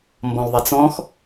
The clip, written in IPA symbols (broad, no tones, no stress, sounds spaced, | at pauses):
m b ɔ̃ l ðˤ ɛ t͡s ɔ̃ x